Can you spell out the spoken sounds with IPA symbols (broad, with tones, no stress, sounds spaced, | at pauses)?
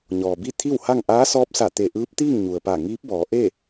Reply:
ɲ ɔː˩ b i˥˨ t̪ʰ i˥˨ w h a˥˨ ŋ ʔ aː˧˥ s ɔː˧˥ p̚ s a˧˩ t̪ e˧˩ ʔ ɯː˧˥ p̚ t̪ iː˥˨ ŋ ɲ u˩ ə̯ p a˧˩ ŋ iː˧˥ p̚ b ɔː˩˧ ʔ e˥˨